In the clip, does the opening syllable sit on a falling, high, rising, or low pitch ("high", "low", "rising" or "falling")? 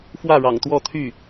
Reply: falling